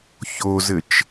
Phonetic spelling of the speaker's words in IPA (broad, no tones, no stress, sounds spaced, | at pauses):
ç o z ɘ t͡ʃ